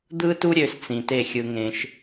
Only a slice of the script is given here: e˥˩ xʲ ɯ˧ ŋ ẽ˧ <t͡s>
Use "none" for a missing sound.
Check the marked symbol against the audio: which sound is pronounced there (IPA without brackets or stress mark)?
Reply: ʃ